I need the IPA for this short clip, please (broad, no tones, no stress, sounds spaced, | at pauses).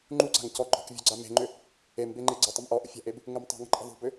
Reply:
ŋ͡ǃ u ǀ a̤ ŋ c ɔ ɡ͡ǃ ɔ̤ k vʲ ɔ̤ ɡ͡ǀ a m e̤ ŋ͡ǃ ʏ | e m b e ŋ͡ǃ e ɡ͡ǀ ə tˤ ə m ʔ ɔ ʔ ə̰ fʲ a̤ ʔ e b | ŋ ə m tˤ ṳ ŋ ə̤ ǃʼ ə̤ ðˤ ṳ b ʏ